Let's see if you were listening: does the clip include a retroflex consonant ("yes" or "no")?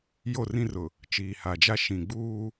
no